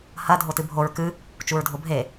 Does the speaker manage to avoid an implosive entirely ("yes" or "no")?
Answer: yes